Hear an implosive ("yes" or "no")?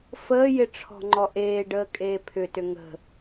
no